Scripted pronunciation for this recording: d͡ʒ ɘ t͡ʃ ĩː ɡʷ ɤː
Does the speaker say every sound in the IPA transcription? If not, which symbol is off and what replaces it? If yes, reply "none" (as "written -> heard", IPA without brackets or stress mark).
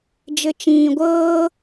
none